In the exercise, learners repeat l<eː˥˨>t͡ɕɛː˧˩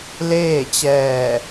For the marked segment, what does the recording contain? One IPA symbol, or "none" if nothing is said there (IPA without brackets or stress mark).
eː˥˨